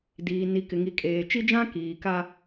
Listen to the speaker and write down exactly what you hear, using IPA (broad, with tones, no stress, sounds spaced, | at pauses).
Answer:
d iː˨ n i˨ k ɪ˨ ŋ i˨ kʼ eː˨ t͡ʃ i˦ d͡ʒ ã˦ k iː˨ k a˦